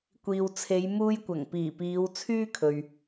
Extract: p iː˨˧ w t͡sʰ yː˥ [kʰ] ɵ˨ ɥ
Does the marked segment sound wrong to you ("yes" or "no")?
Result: no